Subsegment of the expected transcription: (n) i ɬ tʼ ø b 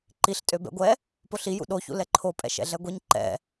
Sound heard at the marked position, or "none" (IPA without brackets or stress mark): ǃ